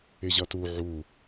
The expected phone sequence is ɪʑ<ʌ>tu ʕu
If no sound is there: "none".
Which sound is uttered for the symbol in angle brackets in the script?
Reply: ʌ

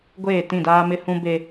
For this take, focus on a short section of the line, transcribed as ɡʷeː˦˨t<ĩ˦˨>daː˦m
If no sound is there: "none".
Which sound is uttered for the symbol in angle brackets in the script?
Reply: ĩ˦˨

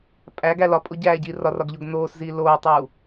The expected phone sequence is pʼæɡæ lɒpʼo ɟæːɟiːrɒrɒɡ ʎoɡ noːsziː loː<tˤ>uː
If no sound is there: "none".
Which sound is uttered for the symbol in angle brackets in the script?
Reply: tˤ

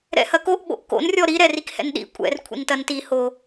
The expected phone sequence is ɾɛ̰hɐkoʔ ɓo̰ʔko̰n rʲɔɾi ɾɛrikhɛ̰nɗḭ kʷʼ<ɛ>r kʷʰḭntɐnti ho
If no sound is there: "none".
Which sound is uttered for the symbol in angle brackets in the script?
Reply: ɛ̰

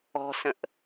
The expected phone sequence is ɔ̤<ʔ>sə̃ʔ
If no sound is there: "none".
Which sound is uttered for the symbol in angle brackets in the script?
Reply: none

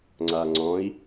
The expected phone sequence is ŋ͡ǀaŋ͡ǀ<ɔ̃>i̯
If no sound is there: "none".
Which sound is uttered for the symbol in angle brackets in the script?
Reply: ɔ̃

